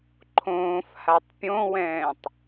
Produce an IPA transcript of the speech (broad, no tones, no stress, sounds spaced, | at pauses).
ǃʰ õː f h a tˤ pʲ õ w ɛ̃ː tˤ